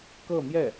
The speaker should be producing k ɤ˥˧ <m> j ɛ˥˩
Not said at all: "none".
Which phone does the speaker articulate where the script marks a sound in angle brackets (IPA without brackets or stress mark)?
m